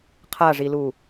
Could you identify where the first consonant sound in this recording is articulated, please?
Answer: uvular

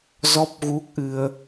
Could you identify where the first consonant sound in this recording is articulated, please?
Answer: alveolar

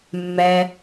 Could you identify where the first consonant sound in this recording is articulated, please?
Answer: labial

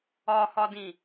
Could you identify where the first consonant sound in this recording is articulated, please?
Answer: glottal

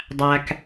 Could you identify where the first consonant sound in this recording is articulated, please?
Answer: alveolar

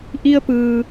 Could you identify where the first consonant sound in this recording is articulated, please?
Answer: glottal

